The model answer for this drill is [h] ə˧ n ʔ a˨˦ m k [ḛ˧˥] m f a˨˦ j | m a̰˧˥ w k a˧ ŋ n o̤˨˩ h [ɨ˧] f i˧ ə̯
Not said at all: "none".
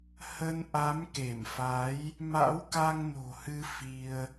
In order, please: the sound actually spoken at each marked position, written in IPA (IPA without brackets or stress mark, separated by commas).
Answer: h, e˧˩, ɨ˧